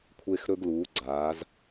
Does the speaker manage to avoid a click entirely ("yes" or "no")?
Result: no